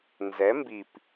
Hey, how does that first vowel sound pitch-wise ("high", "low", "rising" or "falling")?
rising